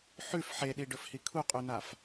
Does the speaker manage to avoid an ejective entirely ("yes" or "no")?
no